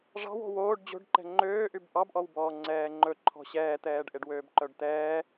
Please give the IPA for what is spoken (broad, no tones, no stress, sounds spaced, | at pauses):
ʐ ɑ̤ w o̤ w oː ɖ d͡ʑ o̤ ɖ ǃ ɛ̤ ŋ͡ǃ øː ʔ y b ʔ ɑ b ʔ ɔ w b ɔː ŋ͡ǀ ɛː ŋ͡ǃ ɵ ǃʰ ɔ̤ ɕ ɛː t̪ ɛː ɖ ʔ e ɖ w øː b ǃ œ ɖ t̪ ɛː